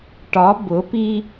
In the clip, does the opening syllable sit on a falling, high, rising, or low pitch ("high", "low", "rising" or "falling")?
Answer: rising